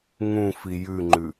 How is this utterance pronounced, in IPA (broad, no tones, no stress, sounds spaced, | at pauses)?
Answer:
ŋ ũ f i j ʉ ŋ͡ǃ ʉ